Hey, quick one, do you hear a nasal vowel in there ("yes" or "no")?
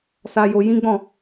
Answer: yes